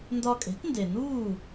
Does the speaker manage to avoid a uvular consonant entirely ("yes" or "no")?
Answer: yes